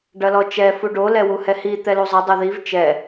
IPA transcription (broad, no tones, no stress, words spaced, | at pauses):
ɖɐlɔt͡ʃɛ fuɖo lɛwuhɛhi t̪ɛluzˤɘ dˤɐðiv t͡ʃɛ